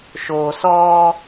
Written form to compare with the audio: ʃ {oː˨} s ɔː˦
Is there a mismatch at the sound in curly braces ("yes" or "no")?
no